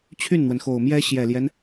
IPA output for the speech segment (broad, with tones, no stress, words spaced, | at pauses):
t͡ɕʰy˥˩nn̪wə˩nxo˨˩ʊ̯mjɛ˥ ɕjɛ˨˩ljɛ˦n